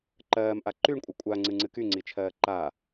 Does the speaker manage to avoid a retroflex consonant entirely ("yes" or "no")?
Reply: no